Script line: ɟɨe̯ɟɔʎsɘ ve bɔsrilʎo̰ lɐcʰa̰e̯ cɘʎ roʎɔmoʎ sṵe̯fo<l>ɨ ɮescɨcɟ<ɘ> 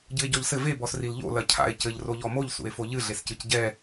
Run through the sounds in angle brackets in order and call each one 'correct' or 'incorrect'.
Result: incorrect, incorrect

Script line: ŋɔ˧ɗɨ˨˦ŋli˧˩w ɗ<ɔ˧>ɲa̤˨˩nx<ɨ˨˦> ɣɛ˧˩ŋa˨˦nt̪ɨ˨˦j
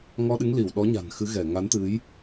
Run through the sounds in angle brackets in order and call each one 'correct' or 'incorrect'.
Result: incorrect, correct

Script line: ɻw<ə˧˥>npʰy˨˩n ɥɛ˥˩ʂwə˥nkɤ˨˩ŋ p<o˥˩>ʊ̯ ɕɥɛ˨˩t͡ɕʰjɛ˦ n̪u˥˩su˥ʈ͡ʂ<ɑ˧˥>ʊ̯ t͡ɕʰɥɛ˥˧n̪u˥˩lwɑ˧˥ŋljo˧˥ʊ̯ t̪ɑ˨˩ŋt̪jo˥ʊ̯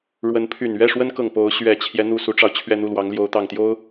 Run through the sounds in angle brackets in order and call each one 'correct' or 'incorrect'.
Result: correct, incorrect, incorrect

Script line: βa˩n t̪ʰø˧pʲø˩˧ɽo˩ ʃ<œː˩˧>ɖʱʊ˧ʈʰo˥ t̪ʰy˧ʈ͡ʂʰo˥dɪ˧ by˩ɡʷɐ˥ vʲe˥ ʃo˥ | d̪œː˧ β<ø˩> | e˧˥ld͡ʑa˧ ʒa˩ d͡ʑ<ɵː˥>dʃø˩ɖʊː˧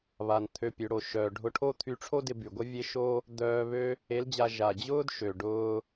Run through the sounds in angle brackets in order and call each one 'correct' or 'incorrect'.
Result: incorrect, incorrect, incorrect

